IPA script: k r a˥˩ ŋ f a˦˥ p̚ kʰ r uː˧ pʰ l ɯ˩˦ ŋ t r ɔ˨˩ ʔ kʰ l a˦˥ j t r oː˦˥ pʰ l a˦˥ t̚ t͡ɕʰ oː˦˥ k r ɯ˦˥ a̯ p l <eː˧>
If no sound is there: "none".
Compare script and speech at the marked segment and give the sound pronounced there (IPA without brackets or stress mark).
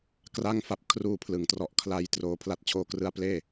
eː˥˩